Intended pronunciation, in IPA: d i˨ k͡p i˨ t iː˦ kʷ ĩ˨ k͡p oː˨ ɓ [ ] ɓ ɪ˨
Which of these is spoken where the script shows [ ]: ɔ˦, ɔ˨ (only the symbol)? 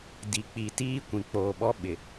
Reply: ɔ˦